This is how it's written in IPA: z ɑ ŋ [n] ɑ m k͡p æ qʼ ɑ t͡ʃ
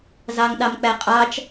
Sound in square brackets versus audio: incorrect: ɗ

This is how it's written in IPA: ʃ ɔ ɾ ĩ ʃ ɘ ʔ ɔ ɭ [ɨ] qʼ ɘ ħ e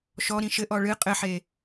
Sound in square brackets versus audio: correct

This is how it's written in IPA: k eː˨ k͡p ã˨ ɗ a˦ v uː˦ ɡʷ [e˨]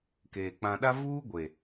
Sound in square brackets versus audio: correct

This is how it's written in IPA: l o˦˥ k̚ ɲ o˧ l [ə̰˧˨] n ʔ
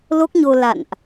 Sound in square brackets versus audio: incorrect: a̰˧˨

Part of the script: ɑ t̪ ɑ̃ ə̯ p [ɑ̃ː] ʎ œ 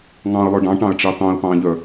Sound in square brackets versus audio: correct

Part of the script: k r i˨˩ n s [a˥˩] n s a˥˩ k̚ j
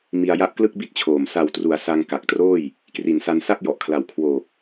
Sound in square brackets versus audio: incorrect: a˧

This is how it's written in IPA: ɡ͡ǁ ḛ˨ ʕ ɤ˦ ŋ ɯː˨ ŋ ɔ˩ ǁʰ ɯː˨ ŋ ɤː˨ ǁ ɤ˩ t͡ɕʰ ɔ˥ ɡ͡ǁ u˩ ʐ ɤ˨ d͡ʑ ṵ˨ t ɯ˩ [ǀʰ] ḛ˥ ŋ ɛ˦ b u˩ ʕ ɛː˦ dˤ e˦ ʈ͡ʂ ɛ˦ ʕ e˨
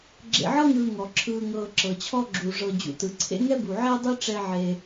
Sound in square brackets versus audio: correct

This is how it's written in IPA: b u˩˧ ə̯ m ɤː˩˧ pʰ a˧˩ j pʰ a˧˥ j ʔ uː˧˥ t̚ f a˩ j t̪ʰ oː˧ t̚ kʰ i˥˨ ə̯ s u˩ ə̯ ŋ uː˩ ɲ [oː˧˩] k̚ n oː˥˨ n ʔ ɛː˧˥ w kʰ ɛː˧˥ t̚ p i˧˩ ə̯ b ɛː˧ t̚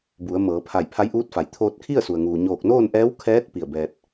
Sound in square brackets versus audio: correct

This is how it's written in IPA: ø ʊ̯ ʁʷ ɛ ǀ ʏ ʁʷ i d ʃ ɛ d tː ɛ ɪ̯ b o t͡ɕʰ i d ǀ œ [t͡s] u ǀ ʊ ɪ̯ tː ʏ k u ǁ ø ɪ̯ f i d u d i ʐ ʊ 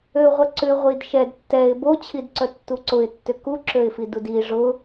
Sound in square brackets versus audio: incorrect: tː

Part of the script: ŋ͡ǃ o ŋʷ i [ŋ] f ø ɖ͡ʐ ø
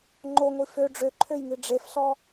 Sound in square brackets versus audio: incorrect: none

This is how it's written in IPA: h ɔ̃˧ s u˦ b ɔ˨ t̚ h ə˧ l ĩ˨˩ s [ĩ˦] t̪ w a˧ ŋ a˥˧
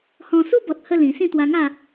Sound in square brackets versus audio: incorrect: ĩ˥˧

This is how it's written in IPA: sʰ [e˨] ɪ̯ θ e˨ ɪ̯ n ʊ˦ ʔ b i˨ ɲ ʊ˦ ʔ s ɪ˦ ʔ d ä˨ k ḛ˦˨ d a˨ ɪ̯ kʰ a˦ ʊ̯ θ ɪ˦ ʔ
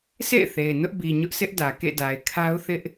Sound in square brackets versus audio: incorrect: ḛ˦˨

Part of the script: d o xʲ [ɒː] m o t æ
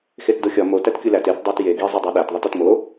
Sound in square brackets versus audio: incorrect: ɒ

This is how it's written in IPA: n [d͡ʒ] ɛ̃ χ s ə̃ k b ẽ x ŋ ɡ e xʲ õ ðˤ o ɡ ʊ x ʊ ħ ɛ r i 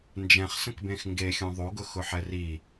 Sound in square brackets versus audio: correct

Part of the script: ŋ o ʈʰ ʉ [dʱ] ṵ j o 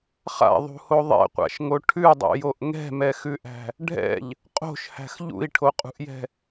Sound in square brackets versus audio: incorrect: dˤ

